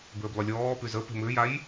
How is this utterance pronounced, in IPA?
b ʏː b lˠ ʏ lʲ ɔː p y z ə p e̤ m ʏː j a j

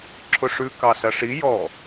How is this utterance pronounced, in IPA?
ǁʰ ʊ ʂ ʉ k ɑ s ɐ ʂ i j ɔ

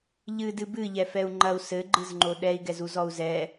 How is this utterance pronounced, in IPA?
ʎ ɨ d ɨ b ɨ ʎ ɛ f ɛ u̯ ŋ͡ǃ ɐ u̯ s ɘ ɡ͡ǃ ɨ z ŋ͡ǃ o ɗ ɛ i̯ ɡ ɛ z u z ɔ u̯ z ɛ

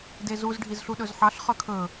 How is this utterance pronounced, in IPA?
d e z u z ɖʱ i z ɬ u ɗ ɵ z ħ ɑ ɬ χ œ kʰ ɵ

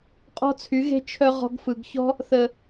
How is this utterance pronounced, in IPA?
qʼ ɔ̤˦ t͡sʰ y˨˦ ɣ e̤˦ t͡ʃʰ œ˦ ʁ ɔ̤˧ ɡ f ɯ˨ ɡ ç ɔ̤˦ | θ ə˨

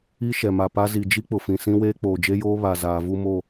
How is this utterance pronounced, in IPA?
i˦ ʃ ɛ˨ m a˨ p a˦ z i˨ d͡ʒ i˦ k͡p ʊ˨ f ĩ˨ s ĩ˦ w eː˦ k͡p oː˨ d͡ʒ e˦ j oː˦ β a˨ z aː˨ v u˦ m o˦˨

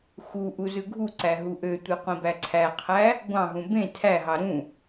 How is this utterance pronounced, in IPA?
x u ʔ u z ɯ ɡʱ u ǀ æ ɦ u ʔ ø tʷ ɯ qʷ ĩ b æ ǀʰ æ qʰ æ | ɡʷ ɑ̃ ɦ ũ b ẽ tʰ æ ɦ ɑ ɾ ũ

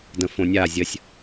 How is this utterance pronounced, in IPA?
d ə̃ f õ nʲ a zʲ ə sʲ

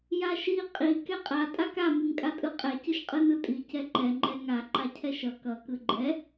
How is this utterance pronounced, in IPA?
j a ʃ i qʼ i k ɛ qʼ a tʼ a k a m ɯ ŋ kʼ a tʼ ɯ qʼ ɛ c ɯ ʃ qʼ ɯ n ɯ tʼ i c ɛ ǃ ɛ ŋ͡ǃ ɛ ŋ a ǃ a cʰ ɛ ʃ ʌ k ʌ k ɯ ɡ͡ǃ ɛ

